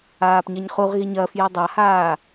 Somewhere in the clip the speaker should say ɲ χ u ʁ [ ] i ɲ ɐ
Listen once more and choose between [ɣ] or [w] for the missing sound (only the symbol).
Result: ɣ